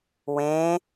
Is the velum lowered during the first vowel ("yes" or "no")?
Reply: yes